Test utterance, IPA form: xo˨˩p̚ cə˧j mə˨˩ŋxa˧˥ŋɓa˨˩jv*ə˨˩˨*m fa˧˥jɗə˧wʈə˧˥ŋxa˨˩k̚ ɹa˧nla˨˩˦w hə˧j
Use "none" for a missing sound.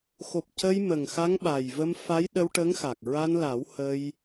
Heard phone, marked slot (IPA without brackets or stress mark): ə˧